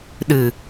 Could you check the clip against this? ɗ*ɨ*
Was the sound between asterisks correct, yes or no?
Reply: yes